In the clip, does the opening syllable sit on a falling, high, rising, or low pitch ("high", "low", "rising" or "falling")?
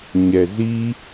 low